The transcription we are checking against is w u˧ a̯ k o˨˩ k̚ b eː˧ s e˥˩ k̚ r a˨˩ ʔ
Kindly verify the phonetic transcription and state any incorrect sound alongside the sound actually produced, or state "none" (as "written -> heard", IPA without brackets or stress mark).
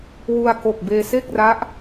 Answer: a˨˩ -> a˦˥